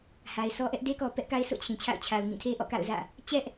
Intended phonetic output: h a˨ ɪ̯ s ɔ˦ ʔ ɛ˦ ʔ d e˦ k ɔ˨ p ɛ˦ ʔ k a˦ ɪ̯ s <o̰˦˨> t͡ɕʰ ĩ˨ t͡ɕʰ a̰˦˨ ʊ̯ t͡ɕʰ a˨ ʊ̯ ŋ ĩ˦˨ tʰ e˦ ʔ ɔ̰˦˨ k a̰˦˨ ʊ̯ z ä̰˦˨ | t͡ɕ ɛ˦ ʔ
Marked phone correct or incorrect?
correct